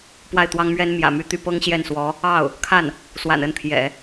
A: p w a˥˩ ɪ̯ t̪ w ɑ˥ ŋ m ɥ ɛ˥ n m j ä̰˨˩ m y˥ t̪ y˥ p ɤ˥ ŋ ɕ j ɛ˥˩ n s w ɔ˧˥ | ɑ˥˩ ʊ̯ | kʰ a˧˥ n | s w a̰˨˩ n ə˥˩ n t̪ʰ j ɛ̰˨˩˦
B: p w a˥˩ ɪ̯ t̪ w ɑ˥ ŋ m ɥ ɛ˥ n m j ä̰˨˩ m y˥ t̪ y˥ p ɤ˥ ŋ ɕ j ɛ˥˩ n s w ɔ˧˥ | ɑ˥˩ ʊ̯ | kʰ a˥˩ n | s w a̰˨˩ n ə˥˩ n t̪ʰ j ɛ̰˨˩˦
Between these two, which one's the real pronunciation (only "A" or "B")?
B